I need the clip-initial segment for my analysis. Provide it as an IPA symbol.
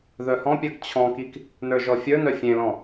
ð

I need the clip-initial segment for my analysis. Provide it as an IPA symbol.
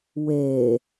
w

